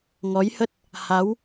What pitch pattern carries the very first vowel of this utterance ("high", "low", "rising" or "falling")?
rising